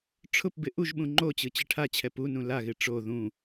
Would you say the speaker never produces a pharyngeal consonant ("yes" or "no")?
yes